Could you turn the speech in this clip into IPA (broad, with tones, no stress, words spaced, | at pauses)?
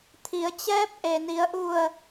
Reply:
t̪ʰi˩˧ə̯t͡ɕɛː˧˥p̚ ʔe˩ni˩˧ə̯ʔu˧˩ə̯